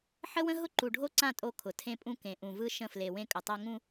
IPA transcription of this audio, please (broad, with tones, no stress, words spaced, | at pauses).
ħə˦wə̃˦ ɦʊ˦ǃu˨ ɖʱo˦ǀã˦˨ tʼo˦ kʰʊ˨ tʰẽ˦pʼũ˦ kẽ˨ ʔũ˨vɯ˦ ʃə̃˦˨fle˨wẽ˦ kʼə˨tˤa˦ ŋũ˦